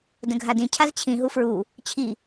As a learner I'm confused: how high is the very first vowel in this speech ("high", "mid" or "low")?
mid